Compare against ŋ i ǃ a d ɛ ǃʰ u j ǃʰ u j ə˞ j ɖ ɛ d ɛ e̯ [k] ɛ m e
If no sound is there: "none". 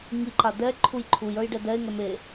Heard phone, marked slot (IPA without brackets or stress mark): ŋ